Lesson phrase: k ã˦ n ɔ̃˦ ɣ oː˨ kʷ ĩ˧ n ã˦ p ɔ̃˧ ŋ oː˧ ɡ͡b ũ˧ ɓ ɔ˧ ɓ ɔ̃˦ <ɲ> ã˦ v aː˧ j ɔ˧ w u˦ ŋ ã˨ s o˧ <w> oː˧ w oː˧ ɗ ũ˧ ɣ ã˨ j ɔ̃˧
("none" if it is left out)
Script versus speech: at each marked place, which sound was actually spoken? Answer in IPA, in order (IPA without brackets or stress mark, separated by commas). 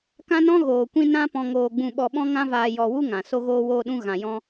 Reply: ŋ, ɣ